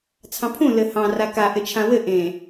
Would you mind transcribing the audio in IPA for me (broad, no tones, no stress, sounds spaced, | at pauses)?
t͡sʰ ɑ̃ pʰ ũ l ɘ h ɑ̃ r a k a ʔ ɘ t͡ʃʰ ã w ɘ ʔ ẽ